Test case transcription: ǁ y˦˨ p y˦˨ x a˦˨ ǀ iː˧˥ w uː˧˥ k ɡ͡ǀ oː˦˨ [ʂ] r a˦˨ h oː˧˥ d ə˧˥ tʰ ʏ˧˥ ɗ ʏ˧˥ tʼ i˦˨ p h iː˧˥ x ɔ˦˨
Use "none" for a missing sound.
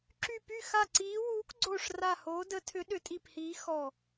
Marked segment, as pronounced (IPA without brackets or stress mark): ʂ